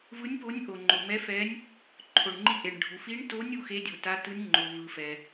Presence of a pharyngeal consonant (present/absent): absent